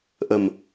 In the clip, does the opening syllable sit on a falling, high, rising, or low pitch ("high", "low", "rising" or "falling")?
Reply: low